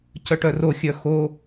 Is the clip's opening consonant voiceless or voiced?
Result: voiceless